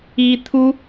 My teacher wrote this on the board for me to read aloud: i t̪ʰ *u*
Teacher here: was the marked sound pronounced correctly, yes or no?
yes